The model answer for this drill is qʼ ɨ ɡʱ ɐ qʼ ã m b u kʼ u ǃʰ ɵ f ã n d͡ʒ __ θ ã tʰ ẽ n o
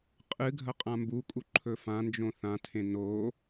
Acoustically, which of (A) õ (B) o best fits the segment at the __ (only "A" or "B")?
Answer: A